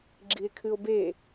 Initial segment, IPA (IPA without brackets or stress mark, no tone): ɡ͡ǁ